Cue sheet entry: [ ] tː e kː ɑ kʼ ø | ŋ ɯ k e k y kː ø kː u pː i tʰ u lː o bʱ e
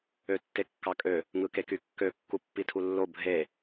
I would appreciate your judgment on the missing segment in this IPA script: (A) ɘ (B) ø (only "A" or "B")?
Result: B